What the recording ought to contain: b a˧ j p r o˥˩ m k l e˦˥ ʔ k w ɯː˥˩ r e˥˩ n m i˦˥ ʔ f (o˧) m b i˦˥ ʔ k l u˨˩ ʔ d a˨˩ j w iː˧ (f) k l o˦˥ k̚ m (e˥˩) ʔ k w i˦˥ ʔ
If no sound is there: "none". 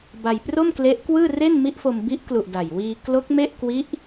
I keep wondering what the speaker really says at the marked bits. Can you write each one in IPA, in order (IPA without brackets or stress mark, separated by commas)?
o˧, none, e˥˩